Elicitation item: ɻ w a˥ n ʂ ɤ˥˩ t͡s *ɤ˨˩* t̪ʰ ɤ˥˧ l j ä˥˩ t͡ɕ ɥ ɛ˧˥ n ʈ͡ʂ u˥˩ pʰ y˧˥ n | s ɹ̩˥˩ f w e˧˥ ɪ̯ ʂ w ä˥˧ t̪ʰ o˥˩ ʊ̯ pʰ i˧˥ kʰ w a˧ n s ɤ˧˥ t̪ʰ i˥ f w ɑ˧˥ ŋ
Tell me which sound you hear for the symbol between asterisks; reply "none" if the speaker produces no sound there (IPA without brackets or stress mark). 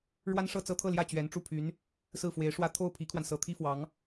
ɤ˥